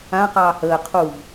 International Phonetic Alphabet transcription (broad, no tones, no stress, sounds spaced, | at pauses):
ã q ɑː h əː qʰ u v